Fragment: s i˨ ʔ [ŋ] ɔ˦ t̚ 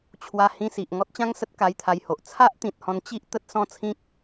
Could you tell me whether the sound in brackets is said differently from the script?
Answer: no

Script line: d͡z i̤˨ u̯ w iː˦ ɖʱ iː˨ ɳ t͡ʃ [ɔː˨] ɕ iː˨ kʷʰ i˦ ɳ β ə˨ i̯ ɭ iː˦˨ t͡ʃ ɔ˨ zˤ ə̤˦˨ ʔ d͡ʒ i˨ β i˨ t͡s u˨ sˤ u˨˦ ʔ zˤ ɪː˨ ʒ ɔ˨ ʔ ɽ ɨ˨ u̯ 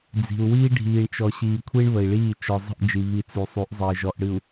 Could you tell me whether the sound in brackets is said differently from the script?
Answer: yes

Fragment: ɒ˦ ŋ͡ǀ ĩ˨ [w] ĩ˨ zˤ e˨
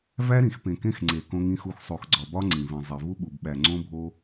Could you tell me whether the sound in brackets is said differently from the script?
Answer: yes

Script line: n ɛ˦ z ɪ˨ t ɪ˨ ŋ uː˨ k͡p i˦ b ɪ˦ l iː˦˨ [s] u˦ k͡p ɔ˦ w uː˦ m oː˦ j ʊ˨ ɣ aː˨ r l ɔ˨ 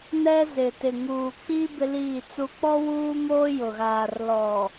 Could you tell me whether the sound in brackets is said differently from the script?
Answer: yes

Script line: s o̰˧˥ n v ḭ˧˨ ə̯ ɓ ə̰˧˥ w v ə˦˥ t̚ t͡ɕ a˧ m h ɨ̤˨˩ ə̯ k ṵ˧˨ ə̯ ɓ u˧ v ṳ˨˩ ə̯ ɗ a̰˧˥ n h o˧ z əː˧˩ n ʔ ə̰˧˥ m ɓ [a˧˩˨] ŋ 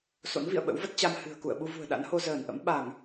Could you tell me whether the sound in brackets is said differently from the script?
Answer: no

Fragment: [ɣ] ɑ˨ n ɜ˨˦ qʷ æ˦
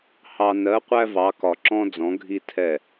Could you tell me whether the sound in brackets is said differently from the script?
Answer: yes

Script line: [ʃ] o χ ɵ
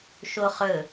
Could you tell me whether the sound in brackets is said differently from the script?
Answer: no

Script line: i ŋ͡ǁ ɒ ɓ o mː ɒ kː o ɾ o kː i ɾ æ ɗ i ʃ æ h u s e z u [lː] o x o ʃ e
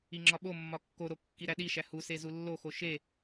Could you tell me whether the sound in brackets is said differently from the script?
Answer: no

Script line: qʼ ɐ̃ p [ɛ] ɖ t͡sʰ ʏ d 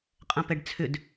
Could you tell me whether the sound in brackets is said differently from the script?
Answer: no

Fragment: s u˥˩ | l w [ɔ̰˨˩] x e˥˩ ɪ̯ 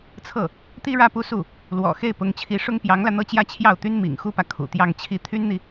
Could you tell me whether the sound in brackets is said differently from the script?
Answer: no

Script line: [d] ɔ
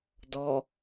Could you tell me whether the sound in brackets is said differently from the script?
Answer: no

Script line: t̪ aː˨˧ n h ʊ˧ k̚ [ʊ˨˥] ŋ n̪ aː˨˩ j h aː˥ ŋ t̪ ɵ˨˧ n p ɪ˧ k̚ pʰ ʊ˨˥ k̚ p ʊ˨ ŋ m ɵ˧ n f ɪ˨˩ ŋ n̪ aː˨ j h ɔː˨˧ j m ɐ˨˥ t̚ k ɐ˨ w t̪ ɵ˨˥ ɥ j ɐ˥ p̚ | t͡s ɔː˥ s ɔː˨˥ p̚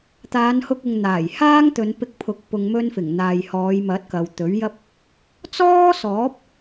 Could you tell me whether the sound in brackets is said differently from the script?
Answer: yes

